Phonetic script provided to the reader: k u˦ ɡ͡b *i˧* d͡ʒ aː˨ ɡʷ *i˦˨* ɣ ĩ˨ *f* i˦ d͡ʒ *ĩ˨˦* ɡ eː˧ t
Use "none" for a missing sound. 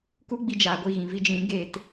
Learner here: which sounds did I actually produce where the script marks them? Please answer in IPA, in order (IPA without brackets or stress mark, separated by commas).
i˧, i˦˨, v, ĩ˨˦